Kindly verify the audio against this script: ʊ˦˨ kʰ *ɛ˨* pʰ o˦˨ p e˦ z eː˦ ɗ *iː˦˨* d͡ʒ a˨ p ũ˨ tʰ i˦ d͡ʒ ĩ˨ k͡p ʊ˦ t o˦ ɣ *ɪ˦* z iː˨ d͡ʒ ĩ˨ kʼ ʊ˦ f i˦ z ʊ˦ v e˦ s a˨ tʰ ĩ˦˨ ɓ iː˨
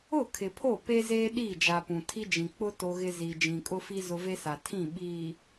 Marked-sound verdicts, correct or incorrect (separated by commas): incorrect, correct, correct